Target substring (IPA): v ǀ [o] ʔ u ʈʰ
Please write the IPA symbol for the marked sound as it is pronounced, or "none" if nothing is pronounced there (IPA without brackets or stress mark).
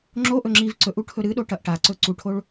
ɵ